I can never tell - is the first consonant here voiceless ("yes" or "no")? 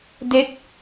no